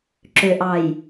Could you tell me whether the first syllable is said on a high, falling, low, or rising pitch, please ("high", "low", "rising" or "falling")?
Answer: low